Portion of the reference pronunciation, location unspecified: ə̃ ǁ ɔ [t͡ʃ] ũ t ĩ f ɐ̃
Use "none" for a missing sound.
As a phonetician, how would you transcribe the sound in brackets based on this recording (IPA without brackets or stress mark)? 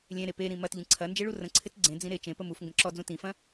d͡z